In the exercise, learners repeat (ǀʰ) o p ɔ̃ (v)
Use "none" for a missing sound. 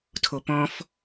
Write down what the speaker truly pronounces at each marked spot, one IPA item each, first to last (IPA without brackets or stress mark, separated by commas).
tʰ, f